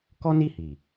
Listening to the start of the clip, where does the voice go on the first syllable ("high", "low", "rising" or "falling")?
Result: high